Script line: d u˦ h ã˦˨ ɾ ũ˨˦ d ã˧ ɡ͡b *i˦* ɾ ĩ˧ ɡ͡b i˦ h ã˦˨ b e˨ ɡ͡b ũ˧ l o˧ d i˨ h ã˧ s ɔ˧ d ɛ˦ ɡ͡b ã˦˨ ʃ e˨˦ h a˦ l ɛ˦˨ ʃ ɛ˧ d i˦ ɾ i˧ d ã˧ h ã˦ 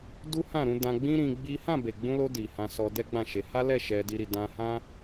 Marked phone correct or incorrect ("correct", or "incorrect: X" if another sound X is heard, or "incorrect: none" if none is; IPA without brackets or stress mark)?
incorrect: ĩ˦